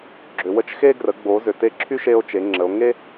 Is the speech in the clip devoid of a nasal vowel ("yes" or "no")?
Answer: yes